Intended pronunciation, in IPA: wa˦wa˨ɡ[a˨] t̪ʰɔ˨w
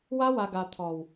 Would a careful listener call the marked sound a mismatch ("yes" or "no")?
no